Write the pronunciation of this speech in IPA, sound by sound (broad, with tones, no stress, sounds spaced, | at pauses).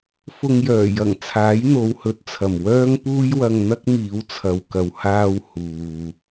f ʊ˧ ŋ j œː˨˩ j ɐ˨˩ ŋ t͡sʰ aː˨˥ j n̪ o˨˧ w h ɵ˨ t̚ t͡sʰ ɐ˨˩ m w œː˥ ŋ p uː˥ j w ɐ˧ ŋ n̪ ɐ˥ k̚ m iː˨˧ w t͡sʰ ɐ˨ w k ɐ˨ w h aː˧ w h uː˨